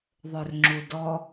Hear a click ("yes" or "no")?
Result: yes